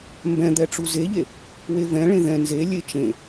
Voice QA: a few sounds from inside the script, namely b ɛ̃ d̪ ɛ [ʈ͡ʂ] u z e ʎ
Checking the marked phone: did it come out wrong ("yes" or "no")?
no